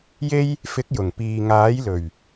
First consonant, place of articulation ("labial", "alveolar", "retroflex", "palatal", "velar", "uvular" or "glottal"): palatal